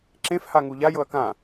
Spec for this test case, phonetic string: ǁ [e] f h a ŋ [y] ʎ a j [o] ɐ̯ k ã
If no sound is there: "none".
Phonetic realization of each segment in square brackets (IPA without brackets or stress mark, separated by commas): ẽ, u, ɤ